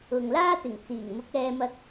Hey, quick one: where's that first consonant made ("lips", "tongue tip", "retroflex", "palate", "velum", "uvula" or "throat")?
velum